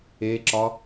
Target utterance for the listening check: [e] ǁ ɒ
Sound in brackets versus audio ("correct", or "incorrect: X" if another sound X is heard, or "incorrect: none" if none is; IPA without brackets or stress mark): correct